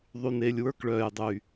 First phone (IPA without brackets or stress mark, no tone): ðˤ